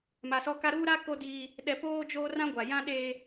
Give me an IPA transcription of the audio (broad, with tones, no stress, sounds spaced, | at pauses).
m a˨ s ɔ˦ k a˦ ɾ uː˦ ɾ a˦ k o˦ d i˦ | ɗ ɛ˨ p oː˦ d͡ʒ oː˦ r ã˦ ɡʷ a˨ j ã˦ ɗ e˦